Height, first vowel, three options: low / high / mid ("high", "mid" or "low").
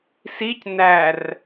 high